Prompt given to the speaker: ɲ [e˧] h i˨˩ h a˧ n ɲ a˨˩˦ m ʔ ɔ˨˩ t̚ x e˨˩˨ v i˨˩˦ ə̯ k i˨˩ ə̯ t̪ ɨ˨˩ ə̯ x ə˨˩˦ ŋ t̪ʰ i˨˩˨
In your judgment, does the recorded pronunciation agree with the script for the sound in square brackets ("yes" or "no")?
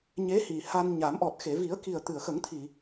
no